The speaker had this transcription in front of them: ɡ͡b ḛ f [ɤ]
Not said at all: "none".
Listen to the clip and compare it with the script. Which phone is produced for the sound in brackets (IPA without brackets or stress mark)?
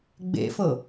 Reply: ɤ